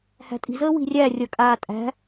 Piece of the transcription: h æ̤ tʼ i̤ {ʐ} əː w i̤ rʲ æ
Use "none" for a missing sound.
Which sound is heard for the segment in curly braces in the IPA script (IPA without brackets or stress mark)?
z